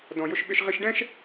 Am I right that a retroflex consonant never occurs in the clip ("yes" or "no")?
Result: no